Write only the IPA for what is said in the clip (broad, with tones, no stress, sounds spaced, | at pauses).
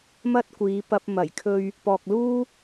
m ɐ˥ t̚ kʷ iː˨˧ p ɐ˧ p̚ m ɐ˨˩ j kʰ ɵ˧ ɥ | p ɔː˨ k̚ l uː˥